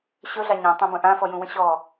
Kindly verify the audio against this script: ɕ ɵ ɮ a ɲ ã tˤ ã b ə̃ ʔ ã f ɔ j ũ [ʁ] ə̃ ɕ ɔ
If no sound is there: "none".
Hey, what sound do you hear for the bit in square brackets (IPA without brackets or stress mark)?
w